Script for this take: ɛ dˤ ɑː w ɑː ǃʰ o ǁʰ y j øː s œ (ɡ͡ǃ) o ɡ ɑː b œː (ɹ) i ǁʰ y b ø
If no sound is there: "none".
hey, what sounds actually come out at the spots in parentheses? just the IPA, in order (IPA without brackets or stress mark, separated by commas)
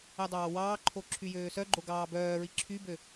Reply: ɡ͡ǃ, ɹ